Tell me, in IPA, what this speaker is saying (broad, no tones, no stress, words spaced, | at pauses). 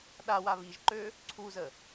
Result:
ɗawa βiʒǃø | ǀʰuzə